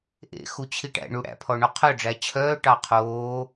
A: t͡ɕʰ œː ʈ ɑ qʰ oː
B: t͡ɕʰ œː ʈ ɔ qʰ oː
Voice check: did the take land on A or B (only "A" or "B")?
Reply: A